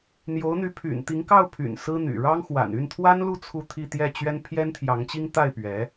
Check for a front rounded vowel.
present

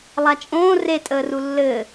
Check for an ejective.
present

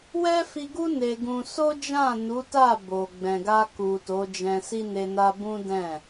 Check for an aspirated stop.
absent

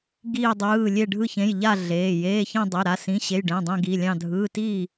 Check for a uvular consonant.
absent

